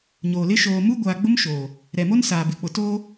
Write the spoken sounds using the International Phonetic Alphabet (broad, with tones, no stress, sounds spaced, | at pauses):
ɲ oː˨ l ɪ˦ ʃ oː˨ m u˦ ɡʷ aː˨ ɡ͡b ʊ˦ m ʃ oː˨ | ɾ ɛ˨ m o˦ n s aː˨ b ɪ˨ k͡p ʊ˨ t oː˦